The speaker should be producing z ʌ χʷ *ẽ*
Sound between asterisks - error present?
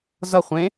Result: no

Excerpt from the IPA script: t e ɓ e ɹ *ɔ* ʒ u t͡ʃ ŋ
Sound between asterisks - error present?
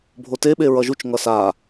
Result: yes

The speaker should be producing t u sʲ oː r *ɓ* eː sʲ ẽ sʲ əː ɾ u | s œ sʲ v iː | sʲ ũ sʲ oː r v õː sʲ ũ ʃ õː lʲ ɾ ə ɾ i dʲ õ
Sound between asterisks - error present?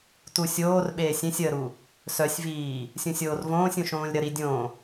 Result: no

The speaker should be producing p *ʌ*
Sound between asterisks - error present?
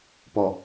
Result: yes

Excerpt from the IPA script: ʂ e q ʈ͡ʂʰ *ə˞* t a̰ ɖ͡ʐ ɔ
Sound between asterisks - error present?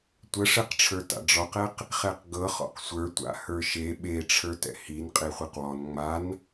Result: no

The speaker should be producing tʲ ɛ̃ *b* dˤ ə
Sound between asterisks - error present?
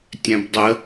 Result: no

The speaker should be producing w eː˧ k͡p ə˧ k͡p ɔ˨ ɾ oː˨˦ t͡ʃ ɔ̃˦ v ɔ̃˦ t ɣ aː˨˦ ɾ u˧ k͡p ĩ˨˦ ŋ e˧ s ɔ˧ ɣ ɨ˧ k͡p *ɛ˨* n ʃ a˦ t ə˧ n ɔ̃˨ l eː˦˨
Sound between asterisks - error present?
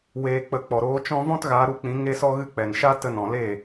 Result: no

